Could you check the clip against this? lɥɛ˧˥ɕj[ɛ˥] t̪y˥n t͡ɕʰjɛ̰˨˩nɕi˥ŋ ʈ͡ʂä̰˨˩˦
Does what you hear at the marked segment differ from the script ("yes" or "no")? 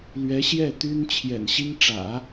yes